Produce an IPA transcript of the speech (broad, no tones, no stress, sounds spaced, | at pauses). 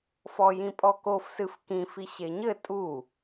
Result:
f ɔ j ĩ pʼ ɔ k o f s ɨ f k ĩ f i ɕ e ɲ ɘ tʼ u